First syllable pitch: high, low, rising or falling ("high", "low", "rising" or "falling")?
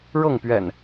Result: falling